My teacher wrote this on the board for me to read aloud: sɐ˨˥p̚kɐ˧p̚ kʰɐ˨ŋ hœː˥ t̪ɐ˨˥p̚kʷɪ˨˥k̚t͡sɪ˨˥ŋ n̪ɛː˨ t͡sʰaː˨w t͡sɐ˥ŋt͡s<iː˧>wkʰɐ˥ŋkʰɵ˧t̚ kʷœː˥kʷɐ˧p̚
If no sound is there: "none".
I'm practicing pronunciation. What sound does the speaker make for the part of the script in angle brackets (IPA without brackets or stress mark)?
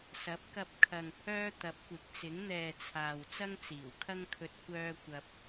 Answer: iː˨˩